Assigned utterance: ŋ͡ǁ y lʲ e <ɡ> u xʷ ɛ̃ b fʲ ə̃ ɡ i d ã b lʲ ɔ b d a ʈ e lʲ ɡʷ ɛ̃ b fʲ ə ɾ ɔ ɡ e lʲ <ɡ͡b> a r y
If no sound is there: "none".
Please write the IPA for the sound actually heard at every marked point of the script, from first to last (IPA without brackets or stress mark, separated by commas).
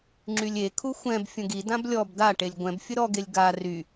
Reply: kʰ, ɡ